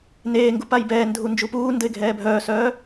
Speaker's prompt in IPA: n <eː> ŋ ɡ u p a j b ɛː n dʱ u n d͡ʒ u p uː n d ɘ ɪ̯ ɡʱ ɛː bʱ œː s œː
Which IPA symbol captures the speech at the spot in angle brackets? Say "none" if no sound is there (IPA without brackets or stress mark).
eː